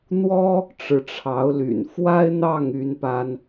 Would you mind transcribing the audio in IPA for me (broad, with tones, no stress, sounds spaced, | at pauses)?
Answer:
n̪ w ɔ˥ | ʈ͡ʂ ɻ̩˧˥ ʈ͡ʂʰ ɑ˧˥ ʊ̯ l y̰˨˩ n f w a˥ ɪ̯ n̪ ɑ˥˩ ŋ y˥ n p a˥ n